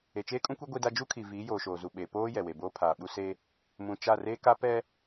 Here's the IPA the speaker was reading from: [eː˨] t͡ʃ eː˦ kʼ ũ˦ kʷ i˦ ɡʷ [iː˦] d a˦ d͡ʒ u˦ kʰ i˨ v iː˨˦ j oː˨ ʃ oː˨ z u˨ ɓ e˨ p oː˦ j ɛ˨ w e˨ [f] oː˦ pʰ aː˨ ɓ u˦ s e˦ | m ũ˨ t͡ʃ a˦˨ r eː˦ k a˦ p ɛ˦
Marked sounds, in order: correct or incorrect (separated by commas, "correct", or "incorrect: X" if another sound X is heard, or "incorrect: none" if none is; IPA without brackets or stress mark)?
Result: incorrect: e˨, incorrect: i˦, incorrect: b